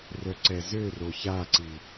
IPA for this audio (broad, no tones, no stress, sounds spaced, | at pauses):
r œ ǀ ɛ z ø r o ç a ǀ i